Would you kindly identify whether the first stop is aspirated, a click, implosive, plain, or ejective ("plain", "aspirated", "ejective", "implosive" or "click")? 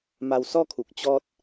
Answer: aspirated